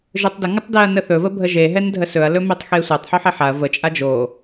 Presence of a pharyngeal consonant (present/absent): present